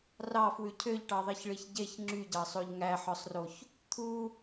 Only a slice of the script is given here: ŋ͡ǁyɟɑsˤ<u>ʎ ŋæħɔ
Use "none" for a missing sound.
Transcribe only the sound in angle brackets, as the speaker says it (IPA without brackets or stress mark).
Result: o